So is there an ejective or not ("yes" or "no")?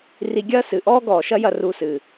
no